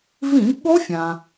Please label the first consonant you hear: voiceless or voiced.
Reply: voiced